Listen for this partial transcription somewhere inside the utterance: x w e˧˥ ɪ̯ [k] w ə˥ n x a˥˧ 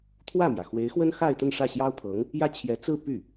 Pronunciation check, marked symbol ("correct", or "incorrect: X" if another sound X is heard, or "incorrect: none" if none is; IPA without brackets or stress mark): incorrect: x